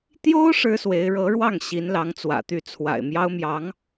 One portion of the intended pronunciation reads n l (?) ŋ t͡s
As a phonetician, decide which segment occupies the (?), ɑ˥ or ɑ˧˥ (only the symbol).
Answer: ɑ˧˥